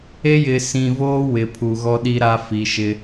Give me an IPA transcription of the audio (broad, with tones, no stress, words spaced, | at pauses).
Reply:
e˦jɪ˨ sĩ˨voː˦ wɪ˨ pʰu˨ɣɔ˦ɗi˦ ɾa˦fi˨ʃɪ˦